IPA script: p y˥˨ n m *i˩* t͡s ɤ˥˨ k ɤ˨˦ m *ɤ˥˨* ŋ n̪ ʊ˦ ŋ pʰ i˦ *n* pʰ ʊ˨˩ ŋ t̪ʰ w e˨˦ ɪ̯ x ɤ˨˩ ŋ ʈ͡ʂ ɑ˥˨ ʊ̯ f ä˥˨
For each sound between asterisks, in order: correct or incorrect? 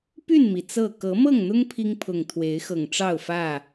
correct, correct, incorrect: ŋ

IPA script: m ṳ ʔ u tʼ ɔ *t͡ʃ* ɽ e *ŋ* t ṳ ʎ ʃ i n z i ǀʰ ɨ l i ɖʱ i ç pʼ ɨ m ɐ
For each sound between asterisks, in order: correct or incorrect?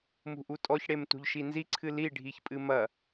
incorrect: ç, incorrect: m

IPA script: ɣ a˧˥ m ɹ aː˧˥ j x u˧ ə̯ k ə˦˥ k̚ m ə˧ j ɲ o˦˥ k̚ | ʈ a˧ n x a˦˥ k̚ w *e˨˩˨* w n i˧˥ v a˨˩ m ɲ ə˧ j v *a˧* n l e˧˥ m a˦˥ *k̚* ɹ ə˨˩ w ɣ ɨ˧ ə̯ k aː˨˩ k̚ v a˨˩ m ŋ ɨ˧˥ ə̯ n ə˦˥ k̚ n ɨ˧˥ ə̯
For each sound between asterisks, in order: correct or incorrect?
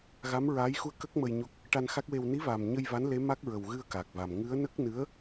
incorrect: e˧, incorrect: a˧˥, correct

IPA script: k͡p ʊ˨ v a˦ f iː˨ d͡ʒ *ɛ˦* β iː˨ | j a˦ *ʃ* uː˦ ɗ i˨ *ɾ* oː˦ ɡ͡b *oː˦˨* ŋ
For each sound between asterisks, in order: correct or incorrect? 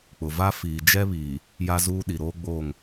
correct, incorrect: z, correct, correct

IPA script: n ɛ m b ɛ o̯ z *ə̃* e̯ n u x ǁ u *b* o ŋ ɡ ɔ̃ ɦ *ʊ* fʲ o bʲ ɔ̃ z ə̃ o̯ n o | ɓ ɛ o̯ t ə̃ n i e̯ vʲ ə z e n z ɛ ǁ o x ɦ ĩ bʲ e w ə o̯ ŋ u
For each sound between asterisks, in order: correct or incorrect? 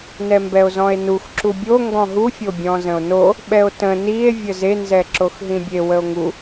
incorrect: ɔ̃, incorrect: bʲ, incorrect: u

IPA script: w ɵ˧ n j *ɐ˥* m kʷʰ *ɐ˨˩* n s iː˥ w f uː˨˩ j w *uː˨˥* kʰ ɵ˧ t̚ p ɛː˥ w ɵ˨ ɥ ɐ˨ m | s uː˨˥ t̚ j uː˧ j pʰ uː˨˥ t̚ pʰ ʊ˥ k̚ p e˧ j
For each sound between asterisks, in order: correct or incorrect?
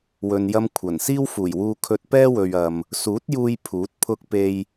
correct, correct, incorrect: uː˧

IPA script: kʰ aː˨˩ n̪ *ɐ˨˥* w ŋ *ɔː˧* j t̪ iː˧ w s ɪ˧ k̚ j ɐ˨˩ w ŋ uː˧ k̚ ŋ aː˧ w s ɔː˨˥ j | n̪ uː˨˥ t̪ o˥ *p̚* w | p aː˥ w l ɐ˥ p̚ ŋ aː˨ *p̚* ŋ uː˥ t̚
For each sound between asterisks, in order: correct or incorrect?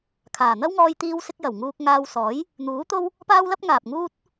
incorrect: ɐ˥, correct, incorrect: none, correct

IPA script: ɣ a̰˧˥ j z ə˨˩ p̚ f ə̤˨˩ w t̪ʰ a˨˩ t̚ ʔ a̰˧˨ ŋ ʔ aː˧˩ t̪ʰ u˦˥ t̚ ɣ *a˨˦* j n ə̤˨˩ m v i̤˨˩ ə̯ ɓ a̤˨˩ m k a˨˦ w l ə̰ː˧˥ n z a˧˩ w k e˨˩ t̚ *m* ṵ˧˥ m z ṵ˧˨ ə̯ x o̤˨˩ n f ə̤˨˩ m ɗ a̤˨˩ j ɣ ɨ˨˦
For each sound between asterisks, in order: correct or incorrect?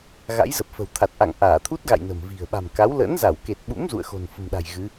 incorrect: a̰˧˨, incorrect: ɓ

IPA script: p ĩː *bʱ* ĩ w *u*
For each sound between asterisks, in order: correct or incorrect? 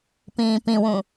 incorrect: p, incorrect: ũ

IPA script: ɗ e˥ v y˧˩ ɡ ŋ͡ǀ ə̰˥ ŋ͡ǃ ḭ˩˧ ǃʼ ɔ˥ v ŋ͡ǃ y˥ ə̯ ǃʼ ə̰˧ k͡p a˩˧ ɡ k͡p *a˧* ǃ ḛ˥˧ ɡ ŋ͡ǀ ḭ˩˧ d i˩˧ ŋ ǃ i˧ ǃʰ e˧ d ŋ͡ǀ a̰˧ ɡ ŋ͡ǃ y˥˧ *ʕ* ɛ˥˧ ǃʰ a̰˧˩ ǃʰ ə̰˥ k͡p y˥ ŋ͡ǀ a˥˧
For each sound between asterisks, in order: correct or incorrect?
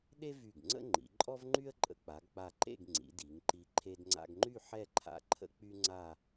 incorrect: a˧˩, incorrect: ħ

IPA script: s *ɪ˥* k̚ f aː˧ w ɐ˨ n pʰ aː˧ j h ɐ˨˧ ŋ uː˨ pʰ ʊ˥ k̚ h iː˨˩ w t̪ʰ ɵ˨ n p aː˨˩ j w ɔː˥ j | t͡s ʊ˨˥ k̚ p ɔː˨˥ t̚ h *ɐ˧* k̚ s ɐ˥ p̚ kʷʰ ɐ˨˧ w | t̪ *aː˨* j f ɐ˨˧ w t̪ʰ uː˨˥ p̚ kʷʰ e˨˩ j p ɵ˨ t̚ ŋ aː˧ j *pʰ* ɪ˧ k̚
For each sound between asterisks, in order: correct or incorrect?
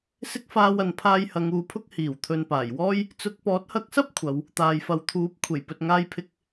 correct, correct, correct, correct

